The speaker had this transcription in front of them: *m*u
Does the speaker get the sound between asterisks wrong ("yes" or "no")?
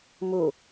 no